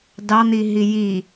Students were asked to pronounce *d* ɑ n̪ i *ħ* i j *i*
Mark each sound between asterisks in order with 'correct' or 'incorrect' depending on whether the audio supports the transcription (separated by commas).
correct, incorrect, correct